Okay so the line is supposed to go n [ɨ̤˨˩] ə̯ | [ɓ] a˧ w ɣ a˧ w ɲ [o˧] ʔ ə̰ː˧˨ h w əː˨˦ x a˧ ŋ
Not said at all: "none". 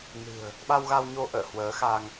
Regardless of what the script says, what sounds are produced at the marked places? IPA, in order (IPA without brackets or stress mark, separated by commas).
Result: ɨ̤˨˩, ɓ, o˧